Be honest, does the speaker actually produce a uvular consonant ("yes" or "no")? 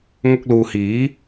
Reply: no